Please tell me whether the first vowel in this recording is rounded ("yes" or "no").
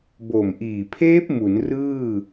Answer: yes